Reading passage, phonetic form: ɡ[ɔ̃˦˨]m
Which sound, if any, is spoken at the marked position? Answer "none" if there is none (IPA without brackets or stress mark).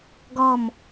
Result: ɔ˦˨